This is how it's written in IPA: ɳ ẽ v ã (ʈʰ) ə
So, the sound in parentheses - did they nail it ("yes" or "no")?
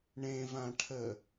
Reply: yes